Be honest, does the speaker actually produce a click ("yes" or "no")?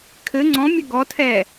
yes